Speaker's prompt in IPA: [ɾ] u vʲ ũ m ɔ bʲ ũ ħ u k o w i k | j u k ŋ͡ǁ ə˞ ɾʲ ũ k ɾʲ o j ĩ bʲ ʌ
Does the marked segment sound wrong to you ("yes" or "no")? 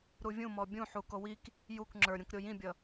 no